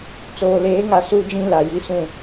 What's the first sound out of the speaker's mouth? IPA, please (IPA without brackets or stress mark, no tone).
t͡s